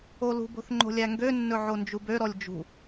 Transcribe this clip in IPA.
o l ṳ b o̤ θ ŋ͡ǃ o̤ lʲ æ ŋ ɡ ø nː ɵ ʕ o n d͡ʒ u b ø ɾ ɔ lʲ d͡ʒ ṳ

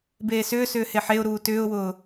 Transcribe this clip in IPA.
b eː s ʏː s ʏː h e ħ e ʊ̯ ɾ uː t ʏː ʊ̯ w ʊː

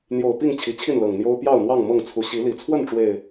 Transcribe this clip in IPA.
n̪ j o˨˩ ʊ̯ p i˥˨ ŋ t͡ɕʰ i˨˦ t͡ɕʰ i˥˨ n l ɤ˨˩ ŋ n̪ j o˦ ʊ̯ p j ɑ˥˨ ʊ̯ n̪ w ɑ˥˨ ŋ m ɤ˥˨ ŋ t͡sʰ u˨˦ ɕ i˨˦ l i˨˩ t͡sʰ w ə˥˨ n ʈ͡ʂ w e˨˩ ɪ̯

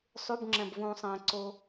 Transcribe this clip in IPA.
sˤ ʉ˧˥˧ b ŋ͡ǁ ɛ̃˧ b v ũː˧ sˤ ɛ̃˧ ǀ o˧

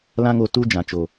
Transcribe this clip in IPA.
l ã˧ ŋ o˨ t u˧ d͡ʒ ã˨ t͡ʃ o˨

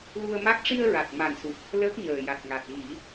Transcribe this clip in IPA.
l u˧ ə̯ m a˦˥ k̚ ʂ i˧ ə̯ ɹ a˨˩ t̚ m a˨˩ n s u˨˩ t̚ | l əː˦˥ k̚ ɲ əː˨˩ j a˨˩ t̚ ŋ a˨˩ t̚ ɣ i˨˩˦

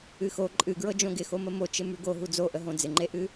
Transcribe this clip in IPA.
ɨ x o ǃʼ ɨ ɡ ɹ ɤ d͡ʒ õ ɡ ɪ x o m ə m o t͡ʃ ɪ m ʉ ɡ o ɦ u d͡z o ʔ ə ɦ õ d͡z ɪ ŋ͡ǃ e ʔ ɨ

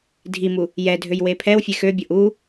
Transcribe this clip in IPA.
dʱ i m u | j ɛ dʱ ø j w e pʰ ɛ w fʲ e x ø bʲ ɤ ʔ u

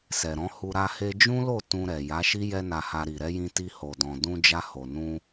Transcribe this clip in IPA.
s ɛ˨ ɾ ɔ̃˨˦ h u˧ ɾ a˧ h e˧ d͡ʒ ũ˦ l o˦˨ t ũ˧ ɾ ɛ˨ j a˨˦ ʃ i˦ j ɛ˦ n a˧ h a˧ ɾ i˨ ɾ ɛ˨˦ j ĩ˧ t i˧ h o˨ d ɔ̃˨ d ũ˧ d͡ʒ a˧ h o˨ n ũ˧

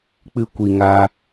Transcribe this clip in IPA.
k͡p ɨ˧ kʷ i˨ ŋ a˧

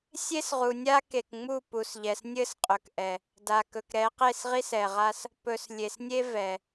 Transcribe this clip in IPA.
sʲ e˦ s ʁ u˨ nʲ a˦ k e˨ k ŋ͡m u˦˨ p u˨ s ʎ ɛ˨ s nʲ ɘ˦ s qʼ ɵ˨ k ʔ ɛ˨ | d a˨ k ɵ˨ k ɾ ɛ˨˦ q e˦˨ s ʁ i˦ s ɛ˨ ʁ a˦ s | p ɵ˨ s lʲ e˨ s nʲ e˦ v ɛ˨

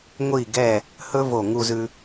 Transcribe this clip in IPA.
ŋʷ i˧˩ ɡ ɛ˧˩ | h ɵ˥ v o˧˩ ŋ u˧ z ʉ˧

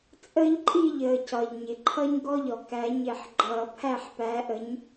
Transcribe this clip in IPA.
t͡sʼ əː˦ ʎ ǃʼ i˥˨ ʎ əː˩ c ɒ˩ ʎ ɲ ɪ˩ ǃʰ ʌ˦ ɲ ɡ ɔ˦ ʎ ɔ˩ k æ˨˩˦ ɲ ɪ˨˩˦ ħ ɡ͡ǃ ʌː˨˩˦ pʰ æ˥˨ ħ p æ˨˥ ʔ ə˨˥ ɲ

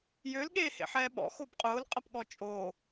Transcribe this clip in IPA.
j ø l ɠ eː h ḛ ħ ɛː ɓ ɔ̰ x o b qʼ ʊː l qʼ ɐ p ɠ ɔ t͡ʃʼ oː

